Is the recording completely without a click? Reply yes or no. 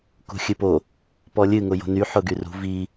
yes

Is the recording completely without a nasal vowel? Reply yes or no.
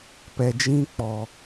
no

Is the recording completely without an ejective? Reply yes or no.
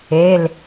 yes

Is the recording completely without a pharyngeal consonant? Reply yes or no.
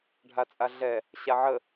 no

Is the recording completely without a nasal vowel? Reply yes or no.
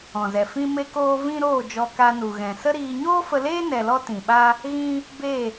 no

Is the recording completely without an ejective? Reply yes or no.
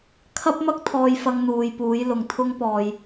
yes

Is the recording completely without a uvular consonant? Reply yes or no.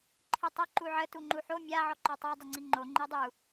yes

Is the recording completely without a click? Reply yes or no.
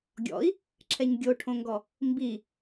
no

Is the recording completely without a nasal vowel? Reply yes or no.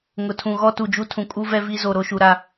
no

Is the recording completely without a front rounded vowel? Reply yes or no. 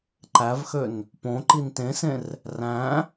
no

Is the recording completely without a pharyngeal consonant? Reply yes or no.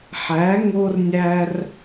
no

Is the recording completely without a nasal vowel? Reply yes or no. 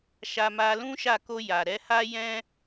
no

